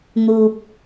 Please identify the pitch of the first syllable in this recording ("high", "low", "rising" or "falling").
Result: high